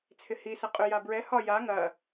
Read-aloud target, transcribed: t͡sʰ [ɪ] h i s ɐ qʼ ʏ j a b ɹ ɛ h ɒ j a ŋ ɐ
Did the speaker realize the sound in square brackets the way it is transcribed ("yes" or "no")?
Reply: yes